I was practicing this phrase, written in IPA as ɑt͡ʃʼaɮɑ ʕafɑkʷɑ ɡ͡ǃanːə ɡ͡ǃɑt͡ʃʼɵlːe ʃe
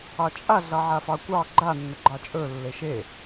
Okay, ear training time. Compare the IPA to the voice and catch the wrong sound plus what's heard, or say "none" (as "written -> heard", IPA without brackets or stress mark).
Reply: none